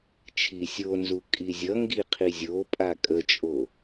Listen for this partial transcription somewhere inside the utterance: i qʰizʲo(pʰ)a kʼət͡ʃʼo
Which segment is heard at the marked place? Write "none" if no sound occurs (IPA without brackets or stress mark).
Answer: pʼ